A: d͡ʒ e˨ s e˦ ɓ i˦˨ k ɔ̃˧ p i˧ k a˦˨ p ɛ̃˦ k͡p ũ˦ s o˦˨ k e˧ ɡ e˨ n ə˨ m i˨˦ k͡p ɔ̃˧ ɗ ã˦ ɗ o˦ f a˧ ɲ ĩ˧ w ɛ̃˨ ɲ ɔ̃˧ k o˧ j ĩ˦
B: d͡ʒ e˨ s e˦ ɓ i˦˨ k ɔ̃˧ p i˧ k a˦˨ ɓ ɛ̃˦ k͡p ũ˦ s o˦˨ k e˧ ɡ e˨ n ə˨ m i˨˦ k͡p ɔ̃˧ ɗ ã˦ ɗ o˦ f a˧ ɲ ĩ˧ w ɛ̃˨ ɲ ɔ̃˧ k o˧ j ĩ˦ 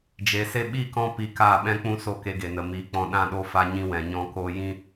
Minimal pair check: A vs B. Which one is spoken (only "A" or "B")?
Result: B